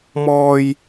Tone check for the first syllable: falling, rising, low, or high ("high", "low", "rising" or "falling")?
high